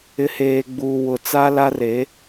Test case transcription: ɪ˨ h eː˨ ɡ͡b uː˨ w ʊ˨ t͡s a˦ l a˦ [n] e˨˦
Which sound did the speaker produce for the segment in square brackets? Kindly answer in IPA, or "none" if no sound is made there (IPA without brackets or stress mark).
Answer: r